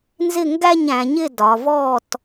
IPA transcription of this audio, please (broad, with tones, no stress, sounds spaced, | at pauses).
n z ɪ˥˨ ŋ ɡ æ˥˨ ɲ æ̃˩˧ ɲ ɪ˥˨ d ɒ˩˧ v ɔ˥˨ t